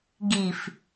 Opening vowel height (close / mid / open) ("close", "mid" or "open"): close